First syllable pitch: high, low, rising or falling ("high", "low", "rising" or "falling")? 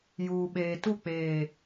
low